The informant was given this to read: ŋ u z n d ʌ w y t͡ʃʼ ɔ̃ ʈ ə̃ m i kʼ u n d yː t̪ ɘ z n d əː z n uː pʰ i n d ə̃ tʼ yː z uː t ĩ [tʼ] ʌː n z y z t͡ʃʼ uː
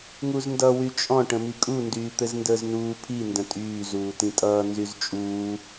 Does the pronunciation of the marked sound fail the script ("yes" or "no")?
no